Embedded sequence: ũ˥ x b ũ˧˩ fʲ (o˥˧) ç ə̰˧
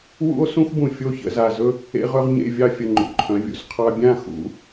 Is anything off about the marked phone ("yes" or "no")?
no